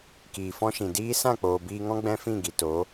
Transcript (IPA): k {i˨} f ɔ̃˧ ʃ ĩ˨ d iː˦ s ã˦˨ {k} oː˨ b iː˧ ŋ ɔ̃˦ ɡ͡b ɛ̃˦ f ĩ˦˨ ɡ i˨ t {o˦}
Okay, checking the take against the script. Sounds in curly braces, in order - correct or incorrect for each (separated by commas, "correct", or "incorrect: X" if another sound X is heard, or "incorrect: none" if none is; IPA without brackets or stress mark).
incorrect: iː˨, incorrect: k͡p, incorrect: o˨˦